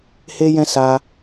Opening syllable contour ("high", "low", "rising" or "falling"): high